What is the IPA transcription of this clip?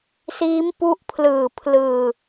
s iː˦˥ m p u˦˥ ʔ pʰ l ɯː˨˩ pʰ l ɯː˧

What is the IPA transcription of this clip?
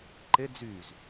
ǃ e d͡z y z

